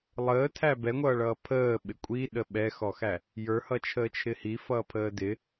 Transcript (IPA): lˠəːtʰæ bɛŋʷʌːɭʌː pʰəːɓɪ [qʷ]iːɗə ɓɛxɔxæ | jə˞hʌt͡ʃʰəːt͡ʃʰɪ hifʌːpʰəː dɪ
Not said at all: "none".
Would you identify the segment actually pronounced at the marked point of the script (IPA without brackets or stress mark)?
kʷʼ